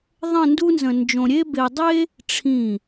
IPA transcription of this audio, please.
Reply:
ðˤ ə̃˥˧ n d u˥ n z ə̃˧ n d͡ʒ õ˧ ɾʲ e˥ b e˧ dˤ e˥ | ʈ͡ʂʰ ĩ˧˩

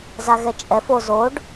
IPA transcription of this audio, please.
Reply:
z a ɣ ɛ t͡ʃʼ ɛ f o z o ɖ

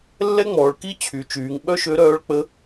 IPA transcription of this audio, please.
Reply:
lː ɛ˥ ŋ͡m ɔː˩˧ ɭ k i˥ t͡ɕʰ y˩˧ t͡ʃ yː˩˧ ŋ ɓ œ˥ ʃ ø˧˥ ɾ œː˧˥ ɭ k͡p ə˧˥

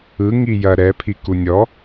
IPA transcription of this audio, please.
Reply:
ɯ ŋ i j ɐ ɾ ɛ pʰ i k u nʲ ɔ

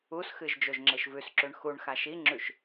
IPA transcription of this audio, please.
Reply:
u s x ɨ ʒ d͡ʒ o ʒ ŋ͡ǁ e ʃ v ʉ s ǁ ʉ ɳ x u ɳ x a ʃ i ŋ͡ǁ ʉ ʃ

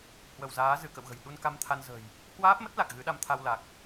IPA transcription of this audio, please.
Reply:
h w ə˧˩ w z aː˨˦ z ɨ˧˩ k ə̰˧˨ w ɣ ə̤˨˩ j ɗ u˧ n k a˧ m t̪ʰ a˧ n z ə̤ː˨˩ j | h w aː˦˥ p̚ m ə˦˥ t̚ l a˨˩ k̚ ɣ ɨ˨˦ ɗ a˧ m t̪ʰ a˧ w l a˨˩ k̚

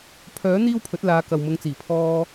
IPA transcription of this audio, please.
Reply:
pʰ œː˨˥ n̪ iː˥ w pʰ ɵ˨˥ t̚ l aː˨˧ k ɐ˨ w m ʊ˨˧ ŋ t͡s iː˨˩ pʰ ɔː˧

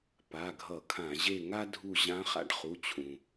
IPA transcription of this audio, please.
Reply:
p a˩˧˩ ɡʱ ʌ˧˩˧ kʰ ã˧˩˧ ʑ e˦˨ ŋ a˥ dʱ u˦˨ ʑ ã˧˥ χ a̰˥ ɖ χ u˩˧˩ t͡ɕʰ ũ˩

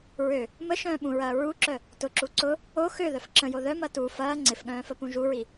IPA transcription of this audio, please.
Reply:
ɹ ø | m ə ʃ œ̃ː ɓ ũ ɹ ɐː ɹ u ǁ œ | t ʊ ǁ u ǀ ʊ | o x ø ð œ f ǁ ə̃ j o ð œ m ɐ t u f ɐː ŋ͡ǀ ɪ f ɠ œ̃ː f ə p ũ ʒ u ɹ i

